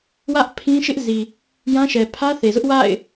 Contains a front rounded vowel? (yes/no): no